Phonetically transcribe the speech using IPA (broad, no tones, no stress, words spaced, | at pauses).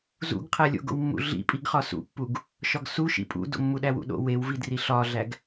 zṵɡ qʰælʲo̰ɡo̰wmːṵ ɮḭpʼiɡ χɒsṵpːuɡ | ʃɒɡsu ʃḭpʼṵdo̰ mːuɗæwṵɗo̰ wewvidri ɬɒɮæɡ